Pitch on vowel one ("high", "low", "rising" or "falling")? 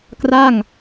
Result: falling